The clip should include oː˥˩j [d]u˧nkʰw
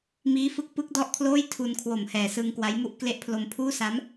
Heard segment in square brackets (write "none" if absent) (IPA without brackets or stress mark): tʰ